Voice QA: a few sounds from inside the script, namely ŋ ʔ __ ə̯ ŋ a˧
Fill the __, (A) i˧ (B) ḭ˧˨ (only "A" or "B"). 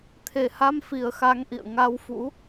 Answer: B